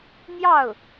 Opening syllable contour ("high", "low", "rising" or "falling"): falling